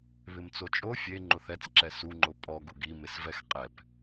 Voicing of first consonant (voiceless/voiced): voiced